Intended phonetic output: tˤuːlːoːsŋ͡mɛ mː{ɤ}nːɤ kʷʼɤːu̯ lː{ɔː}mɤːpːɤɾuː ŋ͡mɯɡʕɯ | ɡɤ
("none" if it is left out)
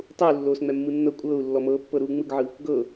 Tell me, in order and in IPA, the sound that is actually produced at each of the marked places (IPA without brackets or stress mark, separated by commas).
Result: ɯ, ɔ